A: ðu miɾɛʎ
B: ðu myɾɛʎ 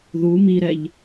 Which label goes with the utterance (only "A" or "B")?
A